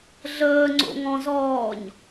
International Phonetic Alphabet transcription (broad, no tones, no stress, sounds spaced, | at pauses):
ɮ əː ŋ͡ǀ o̰ ŋ ɔ̃ z ɔː ɲ